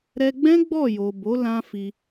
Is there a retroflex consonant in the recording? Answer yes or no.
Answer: no